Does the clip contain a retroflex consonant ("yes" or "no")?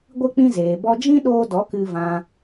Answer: no